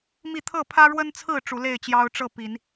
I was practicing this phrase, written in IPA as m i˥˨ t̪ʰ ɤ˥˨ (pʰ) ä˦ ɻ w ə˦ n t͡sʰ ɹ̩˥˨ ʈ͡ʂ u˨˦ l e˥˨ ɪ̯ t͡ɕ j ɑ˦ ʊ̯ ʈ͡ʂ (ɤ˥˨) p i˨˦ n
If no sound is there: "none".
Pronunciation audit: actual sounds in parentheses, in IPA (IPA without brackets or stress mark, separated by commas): pʰ, ɤ˥˨